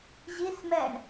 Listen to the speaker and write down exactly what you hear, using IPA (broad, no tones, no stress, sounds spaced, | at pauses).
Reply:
ʑ i s m ɛ ɳ